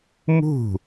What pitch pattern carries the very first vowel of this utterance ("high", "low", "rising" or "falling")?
falling